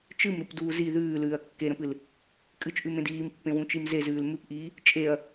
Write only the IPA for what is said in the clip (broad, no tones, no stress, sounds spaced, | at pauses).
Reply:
t͡ʃ ɨ m ɾ u p d uː z i ð ʉː l ʉː ɐ̯ kː e ɾ ə̃ p ɨ l | kʼ ɨ t͡ʃ ʔ ʉ m ẽ d iː m pː ẽ w ũ t͡ʃ i m z e z ʉː l m ʉ p ʔ iː | t͡ʃʼ e ɐ̯